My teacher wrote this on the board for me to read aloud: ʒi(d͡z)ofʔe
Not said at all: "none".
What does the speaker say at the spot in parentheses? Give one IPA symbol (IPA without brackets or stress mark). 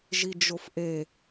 d͡ʒ